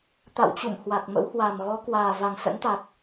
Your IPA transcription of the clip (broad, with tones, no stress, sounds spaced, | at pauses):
t̪ a̰˧˨ w t͡ɕ ṵ˧˨ m h w a˨˩ k̚ m ə̰˧˥ w h w a˨˩ m ɣ ɔ˨˦ k w aː˨˩ v a˨˩ ŋ s ə̰˧˥ n t̪ a˨˩ k̚